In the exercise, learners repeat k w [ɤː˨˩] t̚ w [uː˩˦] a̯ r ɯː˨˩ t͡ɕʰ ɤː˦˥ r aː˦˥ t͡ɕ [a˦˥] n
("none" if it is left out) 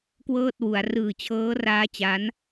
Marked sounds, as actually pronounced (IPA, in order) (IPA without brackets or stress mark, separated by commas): ɤː˥˩, u˩˦, a˦˥